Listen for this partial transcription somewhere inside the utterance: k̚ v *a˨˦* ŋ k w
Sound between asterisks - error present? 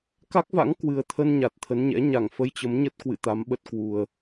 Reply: yes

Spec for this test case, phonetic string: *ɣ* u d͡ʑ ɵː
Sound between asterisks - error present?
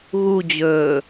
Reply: no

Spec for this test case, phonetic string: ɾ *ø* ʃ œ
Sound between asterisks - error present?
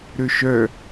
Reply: no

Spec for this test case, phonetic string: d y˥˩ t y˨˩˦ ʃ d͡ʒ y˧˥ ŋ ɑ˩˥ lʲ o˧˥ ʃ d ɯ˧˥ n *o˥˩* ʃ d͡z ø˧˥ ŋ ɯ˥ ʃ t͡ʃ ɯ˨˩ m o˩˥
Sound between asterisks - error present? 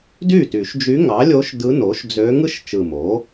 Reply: yes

